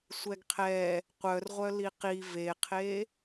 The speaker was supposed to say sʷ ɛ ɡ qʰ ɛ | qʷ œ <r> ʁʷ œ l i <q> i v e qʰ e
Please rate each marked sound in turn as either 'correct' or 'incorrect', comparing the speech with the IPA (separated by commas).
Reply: correct, correct